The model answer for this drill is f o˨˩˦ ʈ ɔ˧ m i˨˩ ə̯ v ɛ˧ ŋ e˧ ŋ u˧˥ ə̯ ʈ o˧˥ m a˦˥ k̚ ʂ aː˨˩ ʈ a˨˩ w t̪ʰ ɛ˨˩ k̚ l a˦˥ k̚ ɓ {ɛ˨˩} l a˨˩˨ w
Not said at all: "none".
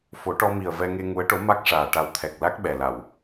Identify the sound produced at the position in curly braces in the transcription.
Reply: ɛ˨˩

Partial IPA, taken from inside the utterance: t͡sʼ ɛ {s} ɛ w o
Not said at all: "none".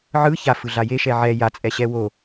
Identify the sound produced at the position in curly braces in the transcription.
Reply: ɕ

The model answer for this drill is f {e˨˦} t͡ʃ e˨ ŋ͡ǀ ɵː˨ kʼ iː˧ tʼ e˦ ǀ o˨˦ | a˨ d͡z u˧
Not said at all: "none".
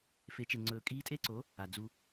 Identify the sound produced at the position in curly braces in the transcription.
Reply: e˨˦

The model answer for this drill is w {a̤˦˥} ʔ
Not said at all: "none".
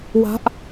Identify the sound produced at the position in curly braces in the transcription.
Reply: a̤˦˥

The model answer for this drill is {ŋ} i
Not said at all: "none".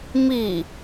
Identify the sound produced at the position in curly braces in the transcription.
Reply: m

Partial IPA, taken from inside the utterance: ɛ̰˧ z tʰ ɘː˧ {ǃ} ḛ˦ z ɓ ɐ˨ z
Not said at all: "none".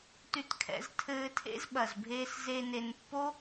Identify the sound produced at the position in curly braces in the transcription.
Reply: tʰ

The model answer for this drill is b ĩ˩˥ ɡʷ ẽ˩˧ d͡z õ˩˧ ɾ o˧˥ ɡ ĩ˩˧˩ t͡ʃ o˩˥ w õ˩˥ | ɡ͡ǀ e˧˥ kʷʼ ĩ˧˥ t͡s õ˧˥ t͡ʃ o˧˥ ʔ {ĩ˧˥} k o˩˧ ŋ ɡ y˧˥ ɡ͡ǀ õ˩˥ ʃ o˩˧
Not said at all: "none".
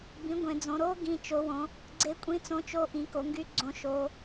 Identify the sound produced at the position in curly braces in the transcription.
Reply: ĩ˩˥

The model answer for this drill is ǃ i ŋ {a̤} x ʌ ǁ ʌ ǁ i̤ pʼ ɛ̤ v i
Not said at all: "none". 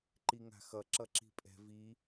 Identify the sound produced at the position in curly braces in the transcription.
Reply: a̤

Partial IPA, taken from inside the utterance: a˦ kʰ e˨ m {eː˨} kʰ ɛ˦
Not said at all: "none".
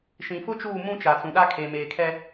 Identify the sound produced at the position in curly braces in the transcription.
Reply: eː˨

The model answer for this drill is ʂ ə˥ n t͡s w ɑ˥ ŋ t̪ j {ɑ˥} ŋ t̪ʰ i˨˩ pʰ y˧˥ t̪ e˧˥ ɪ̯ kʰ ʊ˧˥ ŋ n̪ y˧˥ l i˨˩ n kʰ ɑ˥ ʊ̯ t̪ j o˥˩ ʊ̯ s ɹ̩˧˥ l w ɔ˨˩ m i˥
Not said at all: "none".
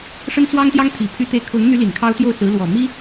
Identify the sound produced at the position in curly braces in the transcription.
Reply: ɑ˥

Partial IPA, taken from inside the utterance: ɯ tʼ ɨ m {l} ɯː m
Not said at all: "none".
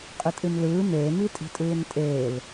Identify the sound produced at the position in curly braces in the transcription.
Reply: l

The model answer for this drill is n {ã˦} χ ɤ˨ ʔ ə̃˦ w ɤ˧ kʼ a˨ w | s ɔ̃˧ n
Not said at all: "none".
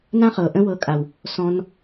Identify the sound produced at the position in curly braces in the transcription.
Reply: ã˦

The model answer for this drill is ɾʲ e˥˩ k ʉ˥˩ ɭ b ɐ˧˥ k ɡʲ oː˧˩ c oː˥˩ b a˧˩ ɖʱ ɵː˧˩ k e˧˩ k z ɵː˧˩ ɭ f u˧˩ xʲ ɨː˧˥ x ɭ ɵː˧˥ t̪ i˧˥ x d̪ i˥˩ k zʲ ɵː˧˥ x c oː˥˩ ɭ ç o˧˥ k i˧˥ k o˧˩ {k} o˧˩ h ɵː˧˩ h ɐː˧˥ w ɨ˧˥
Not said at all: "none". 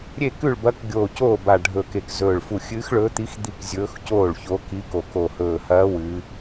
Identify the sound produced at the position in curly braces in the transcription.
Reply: k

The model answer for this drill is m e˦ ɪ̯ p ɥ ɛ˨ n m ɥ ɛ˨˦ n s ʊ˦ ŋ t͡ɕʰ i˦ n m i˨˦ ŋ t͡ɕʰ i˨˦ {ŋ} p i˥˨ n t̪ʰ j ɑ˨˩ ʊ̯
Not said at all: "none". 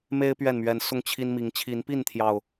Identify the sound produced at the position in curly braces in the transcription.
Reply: n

